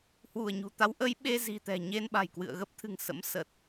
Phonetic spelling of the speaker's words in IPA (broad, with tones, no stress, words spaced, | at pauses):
hwu˧˩ə̯ɲṳ˨˩t̪a˨˦w ʔə˨˦jɓe˧ zi̤˨˩t̪ɛ̤˨˩ɲe˧n ɓa̤˨˩jkwɨ̰˧˨ə̯ɣə˦˥p̚t̪ʰɨ̤˨˩ŋ sə̰˧˥m sə˨˩t̚